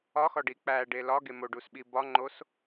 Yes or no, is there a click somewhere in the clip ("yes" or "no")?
yes